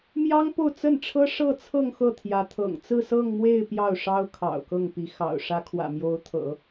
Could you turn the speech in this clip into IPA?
m j ɑ˥ ŋ p o˥˧ ʊ̯ t͡s ə˥˩ n ʈ͡ʂʰ ɤ˥ ʂ ɤ˥˧ t͡sʰ ɤ˥˧ ŋ x ɤ˥˩ t̪ʰ j ä˧˥ t̪ʰ ɤ̰˨˩ ŋ t͡s ɹ̩˥˧ s ɤ˥˧ ŋ m w e˥˧ ɪ̯ p j ɑ˥˩ ʊ̯ ʂ ɑ˥ ʊ̯ kʰ ɑ̰˨˩ ʊ̯ k ɤ˥˩ ŋ p i˧˥ x ɑ̰˨˩ ʊ̯ ʂ ä˧˥ kʰ w ä̰˨˩ m j o˧˥ ʊ̯ t̪ʰ ɤ̰˨˩˦

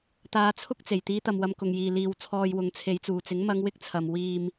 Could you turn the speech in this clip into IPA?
t̪ aː˨˧ t͡sʰ ʊ˥ k̚ t͡s e˨˩ j t̪ iː˨˧ t̪ ɐ˨ m w ɐ˧ m k ʊ˨ ŋ j iː˨ l iː˨ w t͡sʰ ɔː˨ j w ʊ˨˥ ŋ t͡sʰ e˨˧ j t͡s uː˨˩ t͡s ɪ˨˥ ŋ m ɐ˧ ŋ w ɪ˥ k̚ t͡sʰ ɐ˨ m w iː˨ m

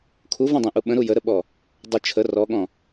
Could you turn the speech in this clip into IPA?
kʰ u v ɔ̃ dˤ ɛ̃ ʔ u ɓ ə̃ ɾ u j ə ɾ ə ɓ ɔ | dˤ ə t͡ʃʰ ə r ɔ ɠ ɔ̃

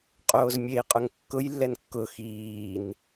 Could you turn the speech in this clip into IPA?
qʼ oː z mʲ e i̯ qʼ ʊ ŋ kː ʊ j lː ɛ n kː ʊ x iː n

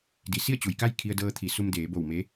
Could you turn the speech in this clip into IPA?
d i˩˧ s i˥˨ ə̯ t͡ɕ u˩ j k a˥˨ j kʰ i˧ ə̯ d ɤː˧ t̪ʰ i˩˧ s u˧ m d eː˩˧ b o˧˩ w m e˧˥

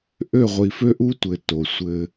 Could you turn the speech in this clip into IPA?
ʔ ø˦˨ ʁʷ i˨ f ø˦ ʔ u˦ tʷ ɘ˨ t o˨ sʷ ɘ˦

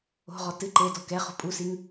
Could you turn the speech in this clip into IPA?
o̤ ʁ ɔ t ɨ ǃ e d ɔ k ɛ χ o̤ pʼ u s i ŋ

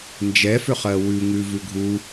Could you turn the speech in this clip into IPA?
n d͡ʒ ɛ f ʏ χ ɜ w ʉ ŋ ʉ v ʉ ɡʱ u

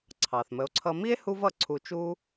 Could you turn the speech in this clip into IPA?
ǀʰ ɑ˩ θ m ə˩˥ o̯ ǀʰ ʌ˧ m i˥ e̯ h u˥ v ʌ˥˩ ǀʰ u˧ t͡ʃ u˥

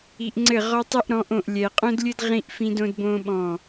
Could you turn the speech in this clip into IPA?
i˨ ʔ ŋ͡ǀ ɘ˦˨ ʁ ɔ˦ tˤ ɘ˦ ʔ ɾ ɔ̃˨˦ ʔ õ˨ ʔ lʲ ɛ˨ qʼ õ˦ d lʲ ɘ˦ d ʁ ĩ˦ ʔ f ĩ˦ d õ˦ d b õ˦ ɓ ɔ̃˦˨

